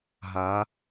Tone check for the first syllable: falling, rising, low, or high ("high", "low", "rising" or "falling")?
rising